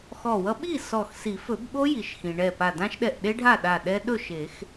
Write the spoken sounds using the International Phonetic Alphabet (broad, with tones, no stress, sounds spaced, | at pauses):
x ɔ˧˩ w ʌ˦˥ ɓ i˥˨ s ɔ˧˩ x s i˨˩˦ f ɵ˨˩˦ b ɓ o˦˥ j i˩ ʃ x ĩ˩ ɳ ɛ˧˩ p a˧˩ d ã˦˥ ʃ ɗ ɛ˧˩ ʔ ɗ e˦˥ ɖʱ a˥˨ ɗ a˧˩ ɗ ɛ˦˥ ɗ ɵ˥˨ ʃ e˨˩˦ x